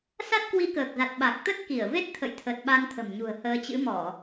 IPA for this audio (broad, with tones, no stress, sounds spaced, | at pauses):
s a˦˥ t̚ k w i˨˦ k əː˨˩ k̚ z a˨˩ t̚ ɓ a˨˩ k̚ t̪ ə˦˥ t̚ k i˧˩ ə̯ v e˦˥ t̚ t̪ʰ ə̰˧˨ j t̪ʰ ə˨˩ t̚ ɓ a˧ n t̪ʰ ə̤˨˩ m ɲ ṳ˨˩ ə̯ h əː˧ t͡ɕ ɨ̰˧˥ m ɔ˧˩˨